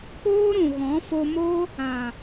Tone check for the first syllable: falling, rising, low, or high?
high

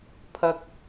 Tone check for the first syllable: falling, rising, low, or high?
high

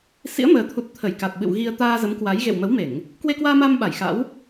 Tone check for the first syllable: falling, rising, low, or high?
rising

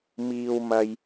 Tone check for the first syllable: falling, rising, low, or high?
low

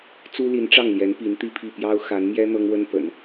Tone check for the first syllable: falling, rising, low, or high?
high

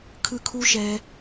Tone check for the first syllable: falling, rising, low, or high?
high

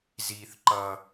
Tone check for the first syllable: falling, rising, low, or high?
low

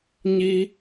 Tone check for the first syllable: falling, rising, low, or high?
high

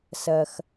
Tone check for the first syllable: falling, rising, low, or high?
high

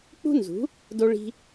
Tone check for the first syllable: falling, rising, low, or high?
high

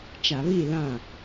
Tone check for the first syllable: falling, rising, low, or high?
low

